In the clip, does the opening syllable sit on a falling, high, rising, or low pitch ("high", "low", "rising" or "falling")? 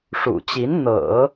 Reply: low